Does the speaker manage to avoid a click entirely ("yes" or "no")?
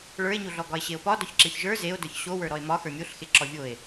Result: no